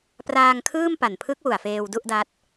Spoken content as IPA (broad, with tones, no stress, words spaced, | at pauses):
praː˧ŋkʰɯː˥˩m pa˨˩npʰɯ˦˥k̚wu˨˩a̯ feː˧wdu˥˩ʔda˦˥t̚